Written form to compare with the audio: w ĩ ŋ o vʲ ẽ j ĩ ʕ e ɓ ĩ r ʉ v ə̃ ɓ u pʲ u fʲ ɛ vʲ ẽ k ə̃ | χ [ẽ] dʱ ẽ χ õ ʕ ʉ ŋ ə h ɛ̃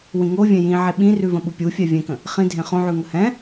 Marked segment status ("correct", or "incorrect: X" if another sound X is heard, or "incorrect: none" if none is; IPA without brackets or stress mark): incorrect: ĩ